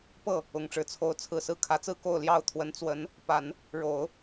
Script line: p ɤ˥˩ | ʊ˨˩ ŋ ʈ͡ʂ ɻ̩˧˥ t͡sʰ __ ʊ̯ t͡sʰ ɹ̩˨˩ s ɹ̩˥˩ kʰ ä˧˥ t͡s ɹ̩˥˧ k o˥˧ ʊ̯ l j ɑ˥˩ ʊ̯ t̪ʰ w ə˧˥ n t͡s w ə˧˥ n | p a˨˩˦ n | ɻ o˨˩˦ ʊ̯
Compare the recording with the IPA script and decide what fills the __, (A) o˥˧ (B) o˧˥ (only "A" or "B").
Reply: B